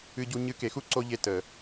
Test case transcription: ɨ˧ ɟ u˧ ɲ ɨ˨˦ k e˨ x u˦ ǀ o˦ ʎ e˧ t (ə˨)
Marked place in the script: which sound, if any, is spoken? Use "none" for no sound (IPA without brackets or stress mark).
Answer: ə˨